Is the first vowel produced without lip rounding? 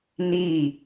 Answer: yes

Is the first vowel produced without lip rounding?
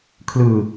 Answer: yes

